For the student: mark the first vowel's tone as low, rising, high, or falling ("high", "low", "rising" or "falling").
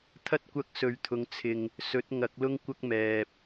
high